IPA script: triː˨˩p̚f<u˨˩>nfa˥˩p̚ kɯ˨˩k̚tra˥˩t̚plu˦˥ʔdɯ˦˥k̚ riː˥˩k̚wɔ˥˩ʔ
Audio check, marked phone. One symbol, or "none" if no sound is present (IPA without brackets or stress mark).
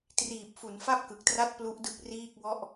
u˩˦